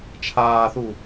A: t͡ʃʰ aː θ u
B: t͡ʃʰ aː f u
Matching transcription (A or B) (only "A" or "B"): A